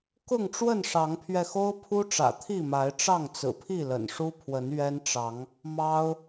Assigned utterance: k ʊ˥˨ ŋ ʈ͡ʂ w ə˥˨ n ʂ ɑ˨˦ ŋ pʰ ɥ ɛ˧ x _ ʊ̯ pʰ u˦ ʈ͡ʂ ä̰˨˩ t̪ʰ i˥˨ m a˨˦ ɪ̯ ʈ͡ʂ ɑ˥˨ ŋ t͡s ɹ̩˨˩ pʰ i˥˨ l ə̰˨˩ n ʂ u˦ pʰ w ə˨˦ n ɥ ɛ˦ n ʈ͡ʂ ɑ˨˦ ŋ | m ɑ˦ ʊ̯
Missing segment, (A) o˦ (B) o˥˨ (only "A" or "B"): A